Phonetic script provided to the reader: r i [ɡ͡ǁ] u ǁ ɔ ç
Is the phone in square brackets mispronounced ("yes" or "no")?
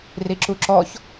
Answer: yes